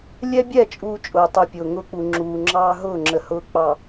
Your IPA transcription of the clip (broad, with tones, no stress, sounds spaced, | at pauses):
lʲ ɛ˦ bʲ ɛ˦˨ t͡ʃʼ uː˦ t͡ʃʼ ʊː˨ tˤ u˨ pʲ ʊː˨ ŋ ʊː˦ k͡p u˨ ŋ͡ǁ uː˨ ŋ͡ǁ ɑː˦ ɦ ʊː˦˨ ŋ͡ǁ ə˨ h ʊː˦ k͡p ɑ˨